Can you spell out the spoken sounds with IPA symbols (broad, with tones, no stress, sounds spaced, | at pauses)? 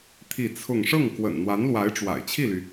t̪ʰ i˥˧ t͡sʰ ʊ˥˧ ŋ ʂ ɤ˥˩ ŋ k w ə̰˨˩ n n̪ w a˧˥ n l w a˧˥ ɪ̯ ʈ͡ʂ w a̰˨˩ ɪ̯ t͡ɕʰ i˥˩ l y˩